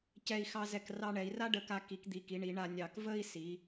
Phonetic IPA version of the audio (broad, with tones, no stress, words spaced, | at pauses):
cɛ˧˩i̯xɑ˧zɛ˧˩k rɑ˧ɳɛ˩˧i̯ ra˥ɖə˧˩ka˧ ki˩˧kd̪i˩˧ki˩˧ɳi˩˧ ɳa˧nʲɑ˧˩k və˥˧i̯si˩˧